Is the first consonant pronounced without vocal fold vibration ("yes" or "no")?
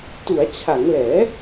yes